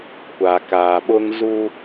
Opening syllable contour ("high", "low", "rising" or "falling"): low